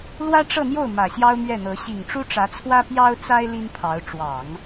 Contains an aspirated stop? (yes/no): yes